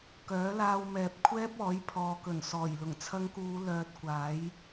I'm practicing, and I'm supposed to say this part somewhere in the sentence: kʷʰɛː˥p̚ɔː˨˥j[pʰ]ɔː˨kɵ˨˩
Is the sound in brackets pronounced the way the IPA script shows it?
yes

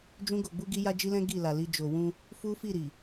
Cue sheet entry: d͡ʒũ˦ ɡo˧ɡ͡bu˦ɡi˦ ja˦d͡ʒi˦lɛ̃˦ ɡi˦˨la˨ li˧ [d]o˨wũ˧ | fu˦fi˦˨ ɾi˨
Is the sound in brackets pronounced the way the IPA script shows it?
no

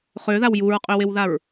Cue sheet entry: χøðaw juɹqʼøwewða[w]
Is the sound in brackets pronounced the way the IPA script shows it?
no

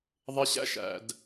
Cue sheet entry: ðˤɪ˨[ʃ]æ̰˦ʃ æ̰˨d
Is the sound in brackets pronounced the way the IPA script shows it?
no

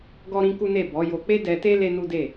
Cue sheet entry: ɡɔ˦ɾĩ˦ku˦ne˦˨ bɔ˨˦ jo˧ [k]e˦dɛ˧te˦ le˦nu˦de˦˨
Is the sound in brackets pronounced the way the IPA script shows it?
no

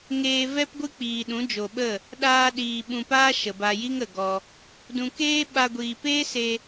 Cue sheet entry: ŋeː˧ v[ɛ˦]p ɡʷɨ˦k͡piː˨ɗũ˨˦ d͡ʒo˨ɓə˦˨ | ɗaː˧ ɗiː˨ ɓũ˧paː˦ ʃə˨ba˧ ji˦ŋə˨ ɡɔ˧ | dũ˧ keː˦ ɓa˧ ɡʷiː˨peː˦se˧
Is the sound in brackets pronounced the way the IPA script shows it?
yes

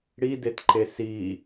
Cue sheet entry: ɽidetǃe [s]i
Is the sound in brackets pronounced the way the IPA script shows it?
yes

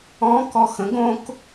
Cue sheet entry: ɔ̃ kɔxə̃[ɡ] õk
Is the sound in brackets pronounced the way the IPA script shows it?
yes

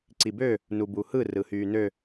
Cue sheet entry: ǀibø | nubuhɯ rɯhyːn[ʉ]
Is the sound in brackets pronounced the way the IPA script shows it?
no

